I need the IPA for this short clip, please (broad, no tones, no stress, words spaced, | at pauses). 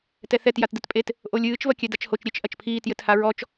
tɛθɛt jatdɘtpʼet | ʔolʲɨːt͡ʃ vɐkʲɛdat͡ʃhot͡ʃ ɾʲet͡ʃ ʔɐt͡ʃpʰiːt jɘthaɹɔt͡ʃ